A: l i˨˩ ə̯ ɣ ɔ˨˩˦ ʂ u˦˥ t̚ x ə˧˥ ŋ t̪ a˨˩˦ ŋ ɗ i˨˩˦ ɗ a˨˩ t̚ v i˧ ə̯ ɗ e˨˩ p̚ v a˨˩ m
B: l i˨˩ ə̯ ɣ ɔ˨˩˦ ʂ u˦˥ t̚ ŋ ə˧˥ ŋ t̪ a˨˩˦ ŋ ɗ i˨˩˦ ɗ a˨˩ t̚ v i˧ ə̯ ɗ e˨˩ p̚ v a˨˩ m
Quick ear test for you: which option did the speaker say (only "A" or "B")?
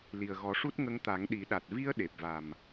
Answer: B